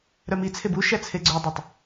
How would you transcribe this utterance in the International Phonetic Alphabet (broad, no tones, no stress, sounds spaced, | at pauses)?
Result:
ɾ œ m i t͡sʰ e b u ʃ æ t͡sʰ e ɡ͡ǀ œ dˤ ø tˤ